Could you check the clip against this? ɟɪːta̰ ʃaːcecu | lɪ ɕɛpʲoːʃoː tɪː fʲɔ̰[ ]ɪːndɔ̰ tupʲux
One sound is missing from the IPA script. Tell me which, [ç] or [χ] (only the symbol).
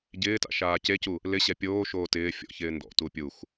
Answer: ç